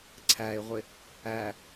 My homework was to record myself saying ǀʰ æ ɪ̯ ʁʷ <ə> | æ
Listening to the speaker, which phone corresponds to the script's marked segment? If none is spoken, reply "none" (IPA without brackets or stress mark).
ɪ